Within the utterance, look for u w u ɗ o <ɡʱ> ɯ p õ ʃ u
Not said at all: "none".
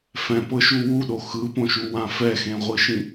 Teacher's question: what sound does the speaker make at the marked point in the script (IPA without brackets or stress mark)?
x